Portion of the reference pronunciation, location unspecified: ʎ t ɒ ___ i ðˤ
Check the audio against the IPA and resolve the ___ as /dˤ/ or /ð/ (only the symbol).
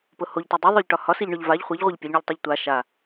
dˤ